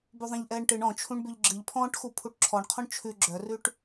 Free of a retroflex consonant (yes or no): no